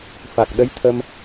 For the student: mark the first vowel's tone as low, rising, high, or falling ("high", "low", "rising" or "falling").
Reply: low